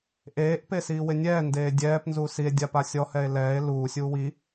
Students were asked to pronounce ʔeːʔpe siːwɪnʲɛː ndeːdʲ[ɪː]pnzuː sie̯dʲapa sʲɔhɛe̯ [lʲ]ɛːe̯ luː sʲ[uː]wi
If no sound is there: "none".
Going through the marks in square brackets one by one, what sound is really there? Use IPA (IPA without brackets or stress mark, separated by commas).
ɛː, l, uː